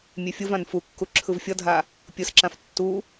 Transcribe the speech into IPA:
mʲefʲɯvãn fukːu ǁʰɯvfʲʌdʱa | pʲɯsǁãf tːu

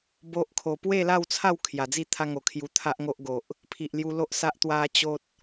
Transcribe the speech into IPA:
bo˦ʔkʰo˧ pwe˥˧la˥˧wt͡sʰa˥˧w kʰja˨˩d͡zi˥˧ t̪ʰa˦ŋo˨˩kʰju˧t̪ʰa˦ʔ ŋo˦ʔɡo˨ʔ | pʰi˨ʔlju˧lo˦ʔsa˦ʔ t̪wa˧ t͡ɕo˦t̚

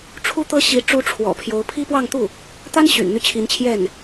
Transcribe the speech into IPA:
ʈ͡ʂʰu˥t̪ɤ˥ɕi˧˥ ʈ͡ʂu˥ʈ͡ʂʰwɔ̰˨˩pʰjo˧˥ʊ̯ pʰi˥pwɑ˥˧ŋt̪u˥˩ | t̪a˥n ɕy̰˨˩n n̪y˥˩t͡ɕʰi˧˥nt͡ɕʰjɛ˥˩n

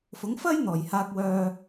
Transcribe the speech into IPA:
fʊ˨˥ŋfɐ˥j n̪ɔː˨˩j haː˧k̚wœː˧

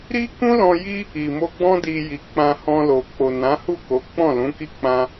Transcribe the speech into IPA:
ɾi˦ kũ˦lɔ̃˧ji˦ | i˨mo˧ɡ͡bɔ̃˦ di˧ ji˨k͡pã˧hɔ̃˧lo˨ k͡po˨nã˨˦hu˦˨ko˨˦ k͡pɔ̃˦˨lũ˨˦ki˦k͡pã˦

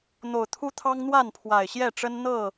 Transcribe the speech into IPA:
n̪o˨˩ʊ̯t̪ʰu˦t̪ʰɑ˦ŋ n̪wa˥˨npʰwa˨˩ɪ̯ɕjɛ˥˨ʈ͡ʂə˦n n̪ɤ˥˨

